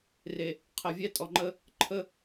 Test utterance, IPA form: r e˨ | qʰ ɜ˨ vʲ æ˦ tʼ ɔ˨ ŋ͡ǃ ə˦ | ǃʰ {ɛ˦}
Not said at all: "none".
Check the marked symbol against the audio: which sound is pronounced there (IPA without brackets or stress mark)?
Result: ə˦